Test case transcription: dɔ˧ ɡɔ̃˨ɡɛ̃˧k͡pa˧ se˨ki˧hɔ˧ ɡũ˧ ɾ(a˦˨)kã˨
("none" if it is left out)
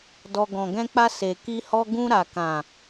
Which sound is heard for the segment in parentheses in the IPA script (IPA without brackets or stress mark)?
a˨